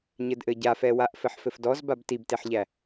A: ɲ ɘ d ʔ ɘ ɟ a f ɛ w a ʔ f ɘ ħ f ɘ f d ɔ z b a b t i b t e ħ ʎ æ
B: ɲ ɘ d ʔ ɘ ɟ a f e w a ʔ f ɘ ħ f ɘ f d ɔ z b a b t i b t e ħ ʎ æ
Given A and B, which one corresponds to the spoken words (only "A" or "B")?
A